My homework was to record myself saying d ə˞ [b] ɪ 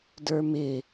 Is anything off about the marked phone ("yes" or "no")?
yes